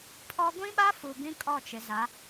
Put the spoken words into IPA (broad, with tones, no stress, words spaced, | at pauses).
pʰɔ˦ ɡʷĩ˦ɓa˦fu˨ bĩ˦kʼɔ˦˨t͡ʃɪ˨za˨˦